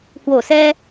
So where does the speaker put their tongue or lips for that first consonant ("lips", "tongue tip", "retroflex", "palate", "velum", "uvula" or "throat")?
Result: throat